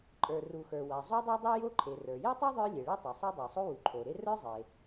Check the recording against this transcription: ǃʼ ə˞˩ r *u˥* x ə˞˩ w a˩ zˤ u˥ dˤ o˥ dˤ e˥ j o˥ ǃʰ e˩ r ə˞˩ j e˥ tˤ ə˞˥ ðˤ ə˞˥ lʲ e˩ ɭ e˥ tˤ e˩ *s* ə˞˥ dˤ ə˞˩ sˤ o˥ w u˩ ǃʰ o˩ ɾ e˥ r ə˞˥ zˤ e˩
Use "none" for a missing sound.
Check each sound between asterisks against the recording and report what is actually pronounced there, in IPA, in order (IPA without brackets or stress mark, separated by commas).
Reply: u˩, sˤ